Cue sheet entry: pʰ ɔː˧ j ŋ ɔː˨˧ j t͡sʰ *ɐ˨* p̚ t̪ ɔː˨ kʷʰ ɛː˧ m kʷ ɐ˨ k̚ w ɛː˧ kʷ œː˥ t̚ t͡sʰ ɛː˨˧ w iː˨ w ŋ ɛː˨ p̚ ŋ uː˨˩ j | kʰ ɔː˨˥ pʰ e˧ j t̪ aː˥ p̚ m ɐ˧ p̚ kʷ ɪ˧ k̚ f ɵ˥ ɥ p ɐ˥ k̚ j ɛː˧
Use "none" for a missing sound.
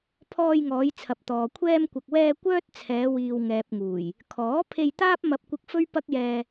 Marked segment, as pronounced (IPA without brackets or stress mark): ɐ˨